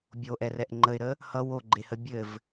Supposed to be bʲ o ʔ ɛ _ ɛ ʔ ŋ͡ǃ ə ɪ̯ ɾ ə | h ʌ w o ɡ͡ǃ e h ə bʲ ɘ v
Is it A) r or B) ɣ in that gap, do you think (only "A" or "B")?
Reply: A